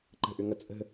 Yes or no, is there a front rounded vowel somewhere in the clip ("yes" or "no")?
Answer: yes